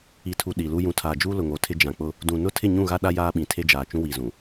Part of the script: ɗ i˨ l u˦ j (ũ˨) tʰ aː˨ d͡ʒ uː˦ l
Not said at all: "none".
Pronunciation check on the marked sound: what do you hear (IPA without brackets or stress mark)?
ũ˨